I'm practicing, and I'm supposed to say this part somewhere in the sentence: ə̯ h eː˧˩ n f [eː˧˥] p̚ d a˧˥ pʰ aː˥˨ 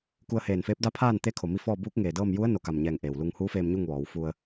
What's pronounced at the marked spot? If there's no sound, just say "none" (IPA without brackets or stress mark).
eː˧˥